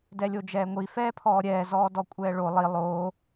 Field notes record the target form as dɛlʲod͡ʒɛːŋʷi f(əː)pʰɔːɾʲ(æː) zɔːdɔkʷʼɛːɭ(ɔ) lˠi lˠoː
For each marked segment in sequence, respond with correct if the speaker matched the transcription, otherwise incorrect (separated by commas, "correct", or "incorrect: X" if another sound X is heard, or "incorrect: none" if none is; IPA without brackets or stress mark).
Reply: incorrect: ɛː, incorrect: ɛː, incorrect: o